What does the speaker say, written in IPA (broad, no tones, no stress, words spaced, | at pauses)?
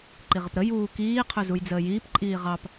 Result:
ǃiʁəpɾə juːkiː qʰɵzujd͡zəːjiːp ǃʼiːʁɑp